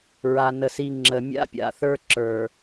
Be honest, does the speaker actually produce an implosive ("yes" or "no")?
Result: no